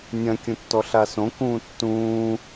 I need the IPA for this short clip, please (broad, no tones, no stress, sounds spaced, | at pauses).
nʲ ɐ̃ kʲ ũ tː ɔ ɬ a s õ k ũː tː ũː